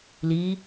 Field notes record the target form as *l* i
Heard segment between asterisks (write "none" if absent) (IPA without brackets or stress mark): l